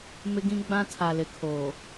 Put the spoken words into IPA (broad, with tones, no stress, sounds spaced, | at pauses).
m ɪ˦ ɡ ĩ˦ ɡ͡b ã˦ tʰ a˨ l ɪ˨ kʰ oː˨